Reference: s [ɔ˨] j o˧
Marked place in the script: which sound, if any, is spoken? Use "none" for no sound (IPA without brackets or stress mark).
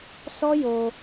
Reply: ɔ˦